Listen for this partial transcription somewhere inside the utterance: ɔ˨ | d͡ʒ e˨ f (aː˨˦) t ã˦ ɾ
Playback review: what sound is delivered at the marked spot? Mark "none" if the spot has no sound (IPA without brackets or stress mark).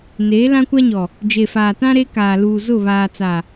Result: aː˨